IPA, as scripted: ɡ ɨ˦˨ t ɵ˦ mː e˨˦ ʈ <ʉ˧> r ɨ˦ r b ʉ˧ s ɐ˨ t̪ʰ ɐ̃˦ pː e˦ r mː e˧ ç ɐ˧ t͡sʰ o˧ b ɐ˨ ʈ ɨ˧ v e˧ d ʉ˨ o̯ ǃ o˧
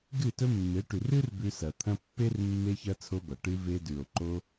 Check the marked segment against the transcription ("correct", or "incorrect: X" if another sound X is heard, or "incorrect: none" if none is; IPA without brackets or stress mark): incorrect: ʉ˨